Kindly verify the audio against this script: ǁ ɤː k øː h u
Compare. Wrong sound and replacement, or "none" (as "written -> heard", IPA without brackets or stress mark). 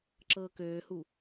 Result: none